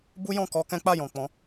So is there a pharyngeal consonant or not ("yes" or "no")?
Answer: no